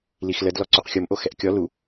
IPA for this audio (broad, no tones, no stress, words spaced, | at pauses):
lixləd lɔǀuqxʲomʔo xɛʔkʲɔ lu